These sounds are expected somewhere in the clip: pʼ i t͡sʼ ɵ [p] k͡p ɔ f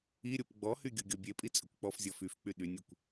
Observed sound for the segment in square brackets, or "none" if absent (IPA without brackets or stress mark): kʷ